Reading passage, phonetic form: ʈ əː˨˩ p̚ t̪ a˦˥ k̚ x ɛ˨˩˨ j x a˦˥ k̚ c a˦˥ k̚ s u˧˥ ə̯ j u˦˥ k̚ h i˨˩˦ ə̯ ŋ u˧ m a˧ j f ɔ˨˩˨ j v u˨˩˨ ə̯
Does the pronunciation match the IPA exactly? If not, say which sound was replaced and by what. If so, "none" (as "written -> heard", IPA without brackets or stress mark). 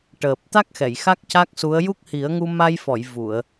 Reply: none